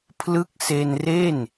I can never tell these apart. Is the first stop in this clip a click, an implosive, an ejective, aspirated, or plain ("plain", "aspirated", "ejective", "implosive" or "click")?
aspirated